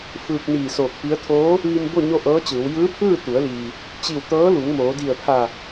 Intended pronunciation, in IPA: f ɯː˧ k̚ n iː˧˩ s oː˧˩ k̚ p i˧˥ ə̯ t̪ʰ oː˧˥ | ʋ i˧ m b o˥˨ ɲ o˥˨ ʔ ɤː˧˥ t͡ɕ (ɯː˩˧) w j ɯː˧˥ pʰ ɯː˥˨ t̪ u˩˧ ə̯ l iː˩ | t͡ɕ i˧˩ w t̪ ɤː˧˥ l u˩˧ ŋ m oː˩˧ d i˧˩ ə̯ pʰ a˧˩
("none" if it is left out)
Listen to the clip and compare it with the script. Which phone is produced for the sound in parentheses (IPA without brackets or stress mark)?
ɯː˩˧